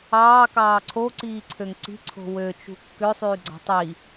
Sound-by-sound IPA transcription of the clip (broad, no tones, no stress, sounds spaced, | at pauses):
ɑː k ɑː ǀʰ o ǀ iː ǀʰ ø ŋ ǀ i̤ ǀʰ o̤ w ø t͡ʃ ṳ kː ø sˤ yː ɡ͡ǀ ɑ̤ tˤ i